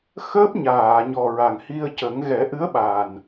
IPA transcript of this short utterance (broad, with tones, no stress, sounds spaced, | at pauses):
x əː˦˥ p̚ ɲ aː˨˩˨ ɲ ɔ˨˩ ɹ a˨˩ ŋ h i˧ ə̯ c ə˨˩˦ ŋ ɣ ɛ˨˩˦ ʔ ɨ˧˥ ə̯ ɓ a˨˩ n